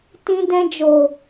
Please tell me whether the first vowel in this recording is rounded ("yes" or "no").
no